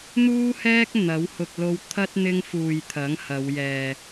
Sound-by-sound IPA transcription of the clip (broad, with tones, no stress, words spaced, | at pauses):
n̪uː˥hɛː˥k̚ n̪ɐ˨˥w hʊ˨k̚lo˧wt̪ʰɐ˥t̚ n̪ɪ˥ŋ fuː˨j t̪ʰɐ˨˥ŋhɐ˨˧wjɛː˨